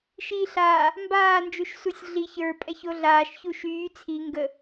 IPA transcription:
ʃ iː ɬ aː | m b aː n d͡ʒ u ʃ s u sʲ ɮ i ç ə˞ pʼ ɛ ç o ɮ aː ʃ ç u ʃ yː t͡sʰ i ŋ ɡ ə

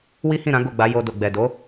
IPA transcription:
w i˦ h ĩ˦˨ ɾ ã˨˦ ɡ o˦˨ ɡ͡b a˨˦ j o˧ d o˨ ɡ͡b ɛ˨ d o˨˦

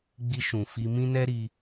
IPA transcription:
ɡ͡b i˧ ʃ ũ˨ f i˧ m ĩ˦ n ɛ˦ ɾ i˧

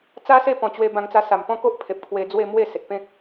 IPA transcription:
t͡s a˦ s e˥˧ p ɔ̃˨˩ t͡ɕ w e˧ b ã˧ ŋ t͡s a˧ s a˨˩ m p ɔ̃˥˧ k o˦ ʔ pʰ e˨ p̚ kʰ w e˧ d͡z w e˥˧ m w e˥˧ s e˨ t̚ p ẽ˦ k̚

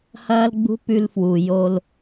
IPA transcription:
h ɐː˦ l ɡ͡b ṳ˦ p ʉ˦ l f w u˨ j o˦ l

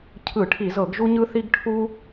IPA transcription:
cʰ ɯ˧˩˧ ʈʰ i˧˩˧ z ɤ˧˩˧ ɡ ʒ u˦ ɲ ɯ˦ θ i˦ ɡ ʈʰ u˦

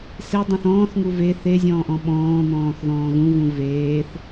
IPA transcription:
s e dˤ õ θ ɔ̃ː θ ŋ u v e θ e zʲ ɔ̃ː ʔ ɔ̃ ɓ ɔ̃ː n̪ ɔ̃ː θ ð ɔ̃ː ɣ ũ v ũ v eː θ

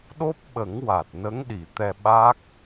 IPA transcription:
ɗ o˦˥ p̚ ɓ ə˨˩˦ ŋ w a˨˩ t̚ n ə˧˥ ŋ ɗ i˨˩ t̪ ɛ˧ ɓ a˦˥ k̚

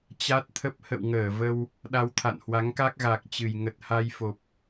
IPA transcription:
t͡ɕ a˦˥ t̚ t̪ʰ ə˦˥ p̚ h ə̰˧˨ w ŋ əː˧˩ v ə˧ w | ɗ a˧ w t̪ʰ a̰˧˨ n h w a˨˦ ŋ k a˦˥ k̚ ɣ a˨˩ k̚ t͡ɕ ɨ˨˩ j ŋ ə˨˩ t̚ h a˧ j f o˨˩ p̚

